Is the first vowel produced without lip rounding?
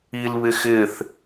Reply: yes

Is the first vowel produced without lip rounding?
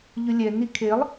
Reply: no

